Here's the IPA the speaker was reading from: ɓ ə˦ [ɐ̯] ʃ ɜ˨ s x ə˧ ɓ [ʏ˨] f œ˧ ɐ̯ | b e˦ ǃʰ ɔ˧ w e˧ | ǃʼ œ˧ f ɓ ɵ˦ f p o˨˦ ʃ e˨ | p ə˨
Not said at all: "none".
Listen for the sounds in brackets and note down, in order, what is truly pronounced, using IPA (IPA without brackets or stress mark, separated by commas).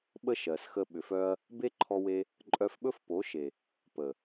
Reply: none, ʏ˨